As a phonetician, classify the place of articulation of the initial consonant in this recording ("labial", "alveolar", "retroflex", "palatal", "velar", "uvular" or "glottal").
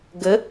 velar